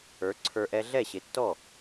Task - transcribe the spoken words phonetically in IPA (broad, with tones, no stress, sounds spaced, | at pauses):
ə˞˩˥ ǀʰ ə˞˧ ʔ ɛ˧ ɮ ɛ˥˩ ɕ ɪ˩˥ tː ɔ˥˩